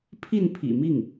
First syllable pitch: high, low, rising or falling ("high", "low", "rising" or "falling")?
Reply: falling